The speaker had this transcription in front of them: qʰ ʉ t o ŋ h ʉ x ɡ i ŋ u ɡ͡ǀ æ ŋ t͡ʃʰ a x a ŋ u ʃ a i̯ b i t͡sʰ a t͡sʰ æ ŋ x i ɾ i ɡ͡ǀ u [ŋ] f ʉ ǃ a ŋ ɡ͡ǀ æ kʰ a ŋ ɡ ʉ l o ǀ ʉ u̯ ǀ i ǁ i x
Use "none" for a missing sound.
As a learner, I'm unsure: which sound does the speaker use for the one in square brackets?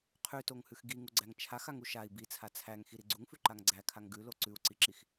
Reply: ŋ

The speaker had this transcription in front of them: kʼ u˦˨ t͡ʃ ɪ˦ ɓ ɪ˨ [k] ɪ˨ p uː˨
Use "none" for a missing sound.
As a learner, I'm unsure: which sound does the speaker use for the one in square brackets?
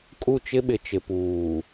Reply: t͡ʃ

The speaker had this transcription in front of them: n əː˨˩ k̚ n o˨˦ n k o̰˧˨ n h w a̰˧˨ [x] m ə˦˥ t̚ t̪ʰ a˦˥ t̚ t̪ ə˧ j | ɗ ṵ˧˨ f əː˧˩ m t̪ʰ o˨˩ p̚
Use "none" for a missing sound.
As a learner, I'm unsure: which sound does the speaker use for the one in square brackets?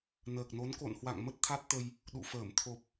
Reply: ŋ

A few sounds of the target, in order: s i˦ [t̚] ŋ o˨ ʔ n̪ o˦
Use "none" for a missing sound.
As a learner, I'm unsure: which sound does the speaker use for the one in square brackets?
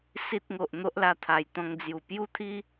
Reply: t̚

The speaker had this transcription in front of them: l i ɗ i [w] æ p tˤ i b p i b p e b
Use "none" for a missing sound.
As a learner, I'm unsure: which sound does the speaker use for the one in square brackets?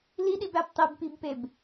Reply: b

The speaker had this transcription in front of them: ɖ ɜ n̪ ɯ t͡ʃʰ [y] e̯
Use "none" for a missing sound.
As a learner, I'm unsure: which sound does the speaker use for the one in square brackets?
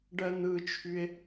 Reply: y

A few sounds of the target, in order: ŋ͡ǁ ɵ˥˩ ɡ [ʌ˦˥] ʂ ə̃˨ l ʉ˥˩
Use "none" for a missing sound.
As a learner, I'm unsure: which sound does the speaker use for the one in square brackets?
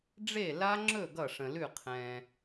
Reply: ʌ˥˩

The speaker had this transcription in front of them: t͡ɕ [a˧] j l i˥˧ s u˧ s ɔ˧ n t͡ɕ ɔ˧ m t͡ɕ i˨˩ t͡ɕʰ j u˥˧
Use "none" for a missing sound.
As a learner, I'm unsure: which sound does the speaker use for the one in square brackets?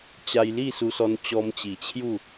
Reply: a˧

